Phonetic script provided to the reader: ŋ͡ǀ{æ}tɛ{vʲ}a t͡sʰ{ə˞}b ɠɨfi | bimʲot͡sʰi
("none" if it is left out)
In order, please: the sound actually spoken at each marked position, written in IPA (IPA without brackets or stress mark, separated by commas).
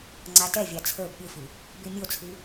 a, vʲ, ə˞